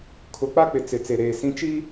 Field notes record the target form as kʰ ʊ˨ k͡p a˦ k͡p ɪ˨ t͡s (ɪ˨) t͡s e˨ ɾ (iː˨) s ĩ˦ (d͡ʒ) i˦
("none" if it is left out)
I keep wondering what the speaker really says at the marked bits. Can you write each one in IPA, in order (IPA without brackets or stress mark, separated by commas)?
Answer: ɪ˨, eː˨, t͡ʃ